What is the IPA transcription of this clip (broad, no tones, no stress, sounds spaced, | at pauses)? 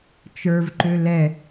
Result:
t͡ʃ ə˞ v ǃ ø l ɛ